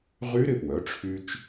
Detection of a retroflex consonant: present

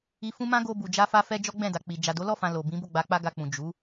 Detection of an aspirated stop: absent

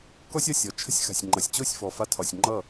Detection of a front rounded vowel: absent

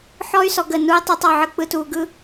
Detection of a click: absent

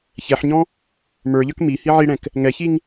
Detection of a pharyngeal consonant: present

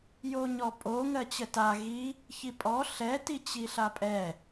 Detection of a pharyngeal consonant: absent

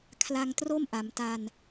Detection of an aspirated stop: present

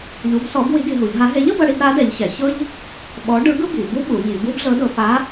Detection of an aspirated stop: absent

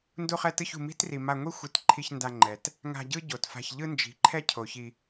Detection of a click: present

